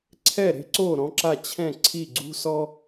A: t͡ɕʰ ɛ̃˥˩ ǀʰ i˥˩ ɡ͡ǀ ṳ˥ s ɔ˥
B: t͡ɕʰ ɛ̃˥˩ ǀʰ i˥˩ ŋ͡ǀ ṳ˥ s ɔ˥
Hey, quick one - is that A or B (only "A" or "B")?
A